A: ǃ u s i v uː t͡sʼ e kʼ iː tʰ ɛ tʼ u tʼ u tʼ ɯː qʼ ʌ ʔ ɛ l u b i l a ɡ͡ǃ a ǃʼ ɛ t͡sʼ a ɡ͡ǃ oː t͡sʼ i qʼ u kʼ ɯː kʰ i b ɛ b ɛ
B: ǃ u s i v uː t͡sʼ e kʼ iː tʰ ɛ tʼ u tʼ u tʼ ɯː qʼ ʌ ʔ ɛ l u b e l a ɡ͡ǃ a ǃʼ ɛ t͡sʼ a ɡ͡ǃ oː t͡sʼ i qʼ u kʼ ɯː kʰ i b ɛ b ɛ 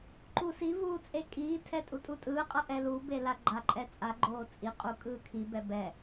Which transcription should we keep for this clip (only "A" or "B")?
B